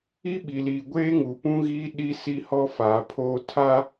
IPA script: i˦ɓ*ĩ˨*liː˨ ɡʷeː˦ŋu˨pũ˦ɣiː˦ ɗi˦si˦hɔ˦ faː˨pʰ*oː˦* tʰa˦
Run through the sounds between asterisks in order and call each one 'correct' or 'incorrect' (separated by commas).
incorrect, correct